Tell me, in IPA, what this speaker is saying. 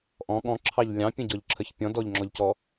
ʔ ɔ̃ ɠ ɔ̃ ǁʰ ɑ ʎ lʲ ɑ̃ pʲ ə̃ ɟ ɔ ʎ ǁʰ ə ç pʲ ɔ̃ d ɔ ʎ ŋ͡ǁ ɔ ʎ c ɔ

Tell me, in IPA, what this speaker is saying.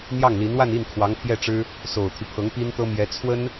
n̪ j ɑ˥˩ ŋ l i˧˥ n w a˥˧ n i˥˩ n kʰ w ɑ˧˥ ŋ pʰ j ɛ˥˩ ʈ͡ʂ ɻ̩˥ | s o˨˩ ʊ̯ t̪ʰ y˦ pʰ ɤ˧˥ ŋ p i˥ n t̪ ɤ˥ m j ɛ˧˥ t͡sʰ w ə˥ n

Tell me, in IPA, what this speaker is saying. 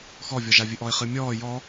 x ɔ vʲ ɔ ʒ a vʲ ɨ ʔ ɔ ɪ̯ χ ɨ mʲ ɔː j ɔ

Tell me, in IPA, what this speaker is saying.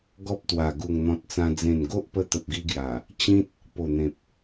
ɡ ɔ˦ p̚ t̪ w a˨˩ ɡ u˨˩ ŋ n̪ ɔ̃˨ t̚ t͡s ã˧ d͡z ẽ˨˩ n ɡ o˦ ʔ p ə˧ t̪ ə˨ p̚ ɡ i˧ ɡ j a˨˩ | t͡ɕ ĩ˦ t̚ | p o˨˩ n̪ ẽ˨ p̚

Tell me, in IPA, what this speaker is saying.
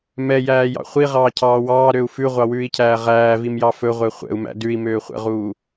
m ɛ j æː j ɑ̰ χʷ i ʁ ɑː cʰ ɑː w ɑː ɾ ø u̯ f ʉ ʁʷ ɑ w ʉː i̯ cʰ æː ʁ æː v i m j ɑ f ɵ ʁʷ ɛ χʷ ɛ̰ u̯ m æ̰ d ʉ i̯ m øː χʷ ɛ̰ ʁ uː

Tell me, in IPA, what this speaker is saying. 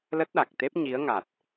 l ə˦˥ t̚ ɗ a˨˩ k̚ t̪ e˦˥ p̚ ɲ i˨˦ ə̯ ŋ a˨˩ t̚

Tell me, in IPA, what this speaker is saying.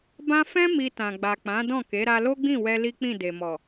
b ã˦ f ɛ̃˦ m i˧ t ã˨ ɡ͡b a˨ k͡p ã˨˦ d ɔ̃˦˨ k e˨˦ ɾ a˧ l o˦ ɡ͡b ĩ˦˨ w ɛ˧ l i˦ k͡p ĩ˦˨ d e˨ m ɔ˨

